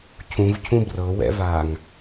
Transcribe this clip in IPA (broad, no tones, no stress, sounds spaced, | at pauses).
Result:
cʰ ũ v cʰ ũ b r ɤ w ɛ̰ v aː ŋ